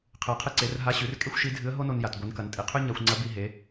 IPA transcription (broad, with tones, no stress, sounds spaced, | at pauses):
qʰ ɨ˩ ə̯ qʰ ɨ˧ ǀ e˩˧ r ɦ a˧˥ ɕ ʉ˩˧ r kʼ e˥ xʷ ʃ i˧˥ dʱ ɨ˧˥ ə̯ ɦ o˥ n o˧ n j a˩ t ɡʷ ɨ˩˧ n k ɐ˩˧ n tʼ i˩ qʰ ʉ˥ ɲ a˧ xʷ ŋ͡ǀ ɐ˧˥ b i˧ ɦ e˩˧